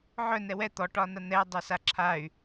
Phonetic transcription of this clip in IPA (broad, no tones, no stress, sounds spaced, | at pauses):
ʕ œ n ɛ w ɛ t̪ ɔ ʈ ɒ n a n̪ ɛ dˤ ɛ s a ǁʰ a y̯